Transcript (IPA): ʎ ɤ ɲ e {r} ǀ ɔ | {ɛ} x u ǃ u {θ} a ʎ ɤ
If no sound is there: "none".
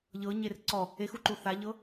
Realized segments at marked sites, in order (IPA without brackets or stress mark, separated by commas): r, e, θ